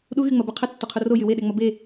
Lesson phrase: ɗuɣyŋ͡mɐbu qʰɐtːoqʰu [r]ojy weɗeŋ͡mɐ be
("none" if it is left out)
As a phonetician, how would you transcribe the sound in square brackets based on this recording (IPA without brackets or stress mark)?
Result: r